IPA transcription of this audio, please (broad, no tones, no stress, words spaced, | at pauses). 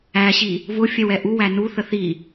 æɕi | vʊ fʲɛwɛʔuwæ nuθə θi